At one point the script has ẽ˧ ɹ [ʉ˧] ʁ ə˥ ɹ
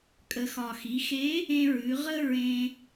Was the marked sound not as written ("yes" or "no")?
yes